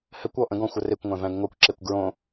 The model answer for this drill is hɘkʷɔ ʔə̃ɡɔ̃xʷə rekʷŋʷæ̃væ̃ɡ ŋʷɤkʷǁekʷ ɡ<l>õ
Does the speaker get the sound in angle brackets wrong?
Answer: yes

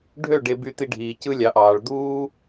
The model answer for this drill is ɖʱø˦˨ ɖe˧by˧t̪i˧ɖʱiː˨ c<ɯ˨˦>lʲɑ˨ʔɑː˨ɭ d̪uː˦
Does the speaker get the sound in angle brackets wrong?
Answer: yes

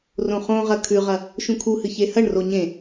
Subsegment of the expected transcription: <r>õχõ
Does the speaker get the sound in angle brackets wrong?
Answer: no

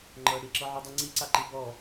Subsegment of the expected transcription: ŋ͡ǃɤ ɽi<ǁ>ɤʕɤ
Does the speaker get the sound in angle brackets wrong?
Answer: no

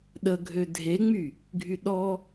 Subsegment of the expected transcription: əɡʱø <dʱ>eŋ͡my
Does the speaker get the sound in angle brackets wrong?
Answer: no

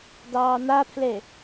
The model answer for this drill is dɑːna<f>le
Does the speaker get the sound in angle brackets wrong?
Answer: yes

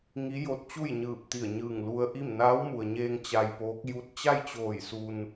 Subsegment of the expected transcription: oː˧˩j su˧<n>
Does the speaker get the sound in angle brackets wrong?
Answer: no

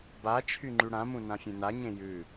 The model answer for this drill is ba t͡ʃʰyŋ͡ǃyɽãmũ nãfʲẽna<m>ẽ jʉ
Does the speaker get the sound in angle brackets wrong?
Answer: yes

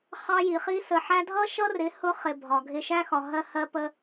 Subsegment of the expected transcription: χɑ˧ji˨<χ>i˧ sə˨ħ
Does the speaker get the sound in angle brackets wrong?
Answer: no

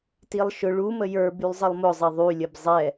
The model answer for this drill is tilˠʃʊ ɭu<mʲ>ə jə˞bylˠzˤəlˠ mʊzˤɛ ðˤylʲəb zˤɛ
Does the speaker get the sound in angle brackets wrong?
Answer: yes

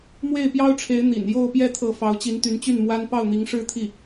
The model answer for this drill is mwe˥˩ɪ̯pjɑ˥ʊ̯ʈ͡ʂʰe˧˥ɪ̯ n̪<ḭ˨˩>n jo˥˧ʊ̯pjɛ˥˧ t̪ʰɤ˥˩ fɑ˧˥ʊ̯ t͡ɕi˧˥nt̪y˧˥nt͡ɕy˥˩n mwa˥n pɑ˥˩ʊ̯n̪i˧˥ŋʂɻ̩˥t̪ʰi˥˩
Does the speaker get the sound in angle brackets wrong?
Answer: no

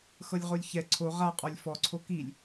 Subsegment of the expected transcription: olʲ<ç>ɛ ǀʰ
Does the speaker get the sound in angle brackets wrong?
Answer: no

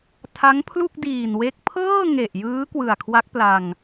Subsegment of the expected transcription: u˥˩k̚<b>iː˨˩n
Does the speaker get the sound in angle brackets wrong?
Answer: yes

